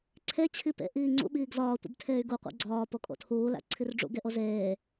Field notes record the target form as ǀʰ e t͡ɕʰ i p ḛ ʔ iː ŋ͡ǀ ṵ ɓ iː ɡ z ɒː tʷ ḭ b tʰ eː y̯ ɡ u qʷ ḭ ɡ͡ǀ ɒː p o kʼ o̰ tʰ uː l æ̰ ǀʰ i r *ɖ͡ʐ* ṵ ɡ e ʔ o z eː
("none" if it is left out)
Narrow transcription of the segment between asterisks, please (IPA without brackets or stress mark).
ɖ͡ʐ